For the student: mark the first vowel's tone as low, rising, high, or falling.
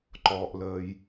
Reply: high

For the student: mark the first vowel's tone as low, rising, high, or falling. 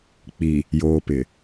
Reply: low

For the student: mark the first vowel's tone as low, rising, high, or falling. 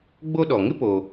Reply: high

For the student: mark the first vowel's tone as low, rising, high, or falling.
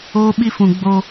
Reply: high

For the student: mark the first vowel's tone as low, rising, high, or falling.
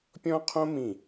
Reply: high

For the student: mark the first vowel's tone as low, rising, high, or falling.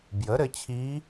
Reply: rising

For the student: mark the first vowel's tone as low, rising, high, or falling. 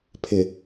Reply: low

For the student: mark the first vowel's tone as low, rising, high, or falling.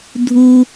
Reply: high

